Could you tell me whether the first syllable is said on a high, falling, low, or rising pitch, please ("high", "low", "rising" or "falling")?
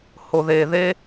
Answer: low